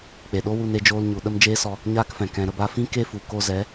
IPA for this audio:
k͡p e˨ ɗ o˦ w u˧ n e˧ d͡ʒ oː˧ l ɲ u˨ ɗ ə˦ m d͡ʒ eː˦ s ɔ˧ | ɲ aː˦ k f ɛ̃˨ k ɛ̃˨ ɾ ə˧ b a˧ f ĩ˦ k e˦ f u˨ k o˦ z ɛ˨˦

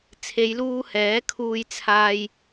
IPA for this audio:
t͡sʰ e˨˧ j l uː˧ h ɛː˨˥ kʰ uː˧ j t͡sʰ aː˧ j

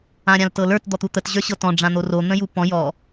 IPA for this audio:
ã ɾʲ ã l t ɤ l ə˞ t d̪ ɔ t̪ u t̪ ə t ʑ ə˞ ɕ ɤ t ɔ̃ ɖ͡ʐ ã n̪ o r o n̪ ə̃ j u p ɔ̃ j ɔ

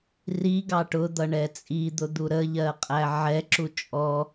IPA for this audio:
r i ɡ ɑ ʈ ʊ d̪ ʌ ɳ ɛ t͡sʼ i d̪ ʊ d̪ u ɾ ə ʎ ɜ qʼ æ ʕ ɛ ǁ u t͡ʃʼ ɔ

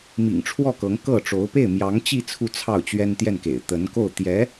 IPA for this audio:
m ḭ˨˩ ŋ ʈ͡ʂʰ w ɔ˥˩ k ɤ˧˥ ŋ k ɤ˥˩ ʈ͡ʂ o˧˥ ʊ̯ p e˥˩ ɪ̯ m j ɑ˧˥ ŋ t͡ɕ i˥˧ t͡sʰ u˥˧ t͡sʰ ɑ˥˩ ʊ̯ t͡ɕ ɥ ɛ˥ n t̪ j ɛ˥˩ n k ḛ˨˩ ɪ̯ t̪ ə˧˥ n k o˥˩ ʊ̯ t̪ j ɛ˧˥

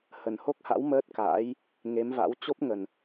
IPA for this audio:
h ə˨˩ n h o˦˥ k̚ h a̰˧˥ w m əː˦˥ t̚ k a̰ː˧˥ j | ŋ e˨˦ m v a̰˧˥ w t͡ɕ o˦˥ p̚ ŋ ə˨˩ n

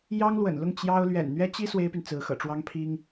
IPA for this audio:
j ɑ˥ ŋ l w ə̰˨˩ n l ʊ˥˩ ŋ t͡ɕ j ɑ˥ ʊ̯ l ɥ ɛ̰˨˩ n n̪ ɥ ɛ˥ t͡ɕ i˥ s w e˥ ɪ̯ p y˨ n t͡s ɹ̩˧˥ x ɤ̰˨˩ ʈ͡ʂ w ɑ˥ ŋ pʰ i˥ ŋ

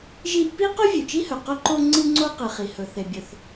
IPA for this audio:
ʒ i˥ ʔ p i˥ q ɵ˥ vʲ ʉ˩ t͡ʃ i˥ h ɵ˩ q ɵ˥ ǃ o˥ ŋ͡ǀ ɨ˥ ŋ͡ǀ o˥ q ɨ˩ χ i˩ h ɵ˩ θ e˩ bʲ ɵ˩ θ

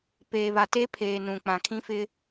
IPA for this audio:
p eː˨ β a˨ t e˦ pʰ eː˨ n ũ˨ k͡p ã˨ kʰ ĩ˦ f ɪ˦

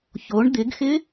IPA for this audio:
ç o ɳ d̪ ɪ ɡ x ɪ

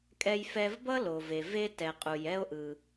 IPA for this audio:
kʼ ɛ˧ j f ɛ˧ v b ʌ˥ l o˩ v e˩ v e˧ t ɛ˩ qʼ u˩ j ɛ˥ o̯ ʔ ɯ˩

